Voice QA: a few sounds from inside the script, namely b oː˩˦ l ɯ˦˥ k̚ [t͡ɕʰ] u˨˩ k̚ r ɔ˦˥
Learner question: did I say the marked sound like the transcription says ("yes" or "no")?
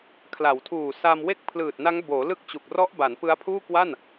no